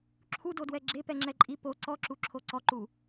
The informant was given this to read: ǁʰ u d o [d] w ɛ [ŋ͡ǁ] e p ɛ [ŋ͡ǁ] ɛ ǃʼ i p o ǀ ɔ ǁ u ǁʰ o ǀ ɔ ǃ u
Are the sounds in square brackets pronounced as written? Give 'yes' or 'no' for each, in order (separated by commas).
yes, no, yes